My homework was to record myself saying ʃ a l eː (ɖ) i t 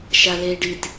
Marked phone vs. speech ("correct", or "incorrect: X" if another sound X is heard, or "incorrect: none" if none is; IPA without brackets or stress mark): correct